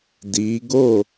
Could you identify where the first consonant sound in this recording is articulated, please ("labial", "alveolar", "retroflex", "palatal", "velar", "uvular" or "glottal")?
alveolar